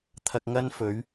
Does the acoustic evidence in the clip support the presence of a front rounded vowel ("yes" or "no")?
no